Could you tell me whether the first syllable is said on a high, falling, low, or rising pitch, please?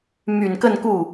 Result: low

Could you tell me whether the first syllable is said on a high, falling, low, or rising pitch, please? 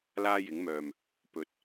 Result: high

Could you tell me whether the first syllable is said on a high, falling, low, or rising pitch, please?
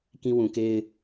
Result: high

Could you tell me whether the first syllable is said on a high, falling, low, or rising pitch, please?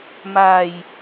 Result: low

